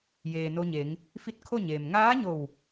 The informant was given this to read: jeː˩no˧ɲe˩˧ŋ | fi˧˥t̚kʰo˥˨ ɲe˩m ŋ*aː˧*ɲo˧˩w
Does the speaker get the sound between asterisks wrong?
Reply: yes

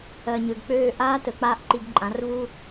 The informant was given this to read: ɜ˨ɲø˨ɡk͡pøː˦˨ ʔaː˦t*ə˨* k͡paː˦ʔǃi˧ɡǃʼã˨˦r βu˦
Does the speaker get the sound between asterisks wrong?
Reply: no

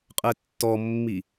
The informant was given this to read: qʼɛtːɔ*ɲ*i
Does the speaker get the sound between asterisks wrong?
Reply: yes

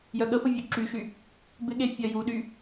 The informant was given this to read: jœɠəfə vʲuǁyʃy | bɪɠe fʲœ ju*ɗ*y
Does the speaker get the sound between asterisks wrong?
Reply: no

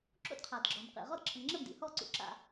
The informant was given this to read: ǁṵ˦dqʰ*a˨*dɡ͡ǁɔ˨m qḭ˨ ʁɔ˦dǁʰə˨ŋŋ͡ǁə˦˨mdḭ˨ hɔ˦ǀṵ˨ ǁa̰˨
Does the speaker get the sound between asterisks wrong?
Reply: no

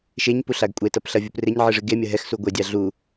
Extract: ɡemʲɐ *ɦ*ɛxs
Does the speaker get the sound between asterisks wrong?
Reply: no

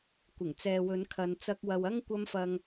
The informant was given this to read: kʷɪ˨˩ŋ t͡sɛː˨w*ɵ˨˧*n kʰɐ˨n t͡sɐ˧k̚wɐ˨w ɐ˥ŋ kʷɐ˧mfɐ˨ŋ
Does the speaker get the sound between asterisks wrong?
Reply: no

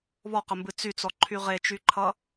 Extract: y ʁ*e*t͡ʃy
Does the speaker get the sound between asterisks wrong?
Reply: no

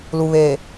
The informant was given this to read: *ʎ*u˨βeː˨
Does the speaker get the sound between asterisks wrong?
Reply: yes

